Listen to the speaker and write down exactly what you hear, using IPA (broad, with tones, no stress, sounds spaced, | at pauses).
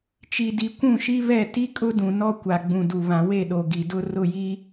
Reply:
t͡ʃ i˨ d i˨ kʷ ũ˦˨ ʃ i˦ β ɛ˦˨ t i˦ kʼ ʊ˦ d ũ˨ n ɔ˦ kʷ a˨ ɡ͡b ũ˨ d u˨ β ã˨ w e˦˨ ɗ o˨ ɡ i˨ d ʊ˦ r ʊ˦˨ j i˦